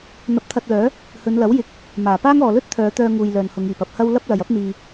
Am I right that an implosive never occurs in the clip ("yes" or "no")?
yes